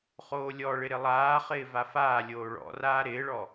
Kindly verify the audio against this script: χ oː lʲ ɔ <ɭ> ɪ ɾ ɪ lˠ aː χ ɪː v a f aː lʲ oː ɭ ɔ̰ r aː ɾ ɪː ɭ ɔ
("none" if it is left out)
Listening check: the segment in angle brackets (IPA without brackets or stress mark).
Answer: ɭ